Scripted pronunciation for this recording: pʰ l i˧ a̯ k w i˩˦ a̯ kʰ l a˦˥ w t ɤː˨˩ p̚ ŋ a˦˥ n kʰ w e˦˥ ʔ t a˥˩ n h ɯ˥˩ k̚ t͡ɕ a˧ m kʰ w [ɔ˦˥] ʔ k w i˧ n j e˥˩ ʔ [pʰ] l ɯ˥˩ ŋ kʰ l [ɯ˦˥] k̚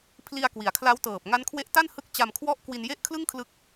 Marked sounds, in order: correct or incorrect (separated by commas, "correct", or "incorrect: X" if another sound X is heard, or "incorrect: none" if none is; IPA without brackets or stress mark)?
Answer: incorrect: ɔ˥˩, incorrect: kʰ, correct